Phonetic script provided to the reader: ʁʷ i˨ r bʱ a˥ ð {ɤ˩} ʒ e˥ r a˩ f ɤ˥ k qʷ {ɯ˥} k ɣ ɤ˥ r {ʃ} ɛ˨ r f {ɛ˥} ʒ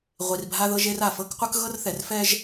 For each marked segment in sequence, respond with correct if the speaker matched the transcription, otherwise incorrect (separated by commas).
incorrect, correct, incorrect, correct